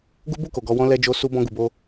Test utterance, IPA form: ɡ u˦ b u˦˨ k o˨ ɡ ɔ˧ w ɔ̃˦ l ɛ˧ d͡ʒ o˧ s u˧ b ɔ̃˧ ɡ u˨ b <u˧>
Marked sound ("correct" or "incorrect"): incorrect